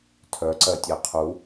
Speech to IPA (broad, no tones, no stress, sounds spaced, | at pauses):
tʰ œ ǀ ɜ tʲ ɜ qʰ u